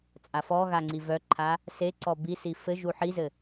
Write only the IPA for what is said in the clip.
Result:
t͡sʼ a f ɔ ɣ a ŋ͡ǀ i v œ ǃʰ a | s e ǀ ɔ b i s i f ɘ ʒ u ħ i z ɘ

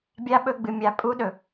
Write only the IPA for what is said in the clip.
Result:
bʲ a˦ ɓ ɵ˦ ɡ͡b ɨ˨ mʲ a˨ pʼ u˦ ɗ ɵ˨

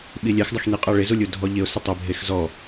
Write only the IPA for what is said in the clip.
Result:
ɓ i lʲ ɛ x dˤ ɪ x n i qʼ a ɭ ɪ z u lʲ u dʱ ɔ ʎ ɪ ʊ̯ s ɪ tˤ ɪ bʱ e x z ɔ

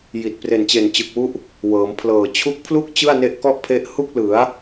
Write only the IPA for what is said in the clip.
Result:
j i˨˩ t̚ p r e˨˩ n t͡ɕ e˨˩ n t͡ɕ ɯ˨˩ k̚ w u˦˥ ʔ | w ɤː˩˦ m pʰ l ɤː˨˩ t͡ɕʰ u˦˥ k̚ pʰ l u˥˩ k̚ t͡ɕ ɯ˥˩ a̯ n e˦˥ ʔ k ɔ˥˩ ʔ pʰ e˦˥ ʔ h u˥˩ k̚ l ɯ˩˦ a̯

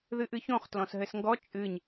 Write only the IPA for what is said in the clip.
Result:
ð ɨ ʔ ɨ ç õ χ t l ɔ̃ s ɦ ɘ s ŋ ɡ ɔ t͡ʃʼ ɨ ɲ

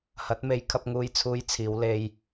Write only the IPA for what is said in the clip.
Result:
h ɐ˨˥ t̚ m e˨˧ j kʰ ɐ˧ p̚ ŋ uː˧ j t͡sʰ uː˧ j t͡sʰ iː˨˧ w l e˧ j

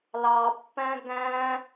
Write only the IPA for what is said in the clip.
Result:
l ɑ pː æ̃ ɡ æ̃

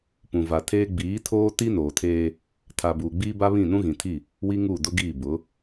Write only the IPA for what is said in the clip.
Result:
p ũ˨ v a˨ tʰ eː˦ ɡ͡b iː˨˦ tʰ oː˦ t i˦ n oː˨ tʰ eː˦ | tʰ a˨ b uː˨ ɡ͡b iː˦ b a˦ β ĩ˦˨ n ũ˦ ɣ ĩ˨ tʰ i˦˨ | w i˦ ŋ uː˦˨ d ʊ˦ ɡ iː˦˨ b ʊ˨˦

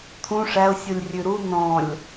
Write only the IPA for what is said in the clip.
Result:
t̪ʰ ũ ʂ æ ʊ̯ sʲ u lʲ rʲ ʉ ɾ u n ɔ̃ lʲ

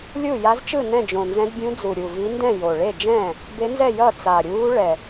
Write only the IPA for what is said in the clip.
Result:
lʲ u˥˩ j a˧˥ z t͡ʃ ɯ˥˩ n ɛ̃˥˩ d͡ʒ õ˨˩ n z ɛ̃˧˥ d bʲ ũ˧˥ d͡z u˨˩ ɾʲ u˨˩ v i˧˥ n d ɛ̃˥˩ j o˨˩ ɭ e˥˩ d͡ʒ ɛ̃ː˥˩ | b e˧˥ n z ɛ˥˩ j ʌ˥˩ t͡s a˨˩ ɾʲ uː˧˥ ɭ ɛ˨˩

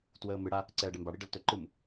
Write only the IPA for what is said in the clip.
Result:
t w əː m ɨ ɽ a | ǀ ɛː ɖ ɛ m b a ɽ i ɖ ə l t ɵ ǃ ɨ m

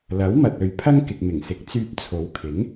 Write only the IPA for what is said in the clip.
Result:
l ɐ˨˥ w m ɐ˨ t̚ ɵ˨˧ ɥ pʰ ɐ˥ ŋ k ɪ˨ k̚ m ɪ˨˩ ŋ s ɪ˨˥ k̚ t͡s yː˧ p̚ t͡sʰ o˨˧ w kʰ ɪ˨˥ ŋ

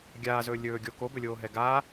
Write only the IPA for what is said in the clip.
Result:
ɡʲ aː z ɵː lʲ ɵː ɡʲ o k o b ɵ lʲ oː ɦ ɛ ɡ a

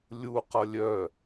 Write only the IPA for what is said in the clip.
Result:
lʲ u q ʌ lʲ œ

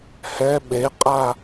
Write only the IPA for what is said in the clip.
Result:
h ɛ ɓ e qʼ a

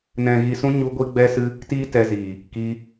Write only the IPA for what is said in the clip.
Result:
n ɛ̃˨ ɣ i˨ s ũ˧ ɲ u˧ ɡʷ i˧ ɡ͡b ɛ˧ s ɨ˧ | t iː˦ t ɛ˧ z iː˨ | k i˧

